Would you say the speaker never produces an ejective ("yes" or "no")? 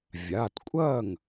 no